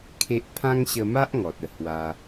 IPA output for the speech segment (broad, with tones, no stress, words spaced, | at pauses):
kʰe˦ʔ pʰã˦ŋɕə˧ma˦ʔ ŋɔ˨t̚ə˥˧ hwa˧